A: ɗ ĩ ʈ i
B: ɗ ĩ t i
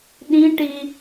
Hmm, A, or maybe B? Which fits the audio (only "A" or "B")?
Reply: A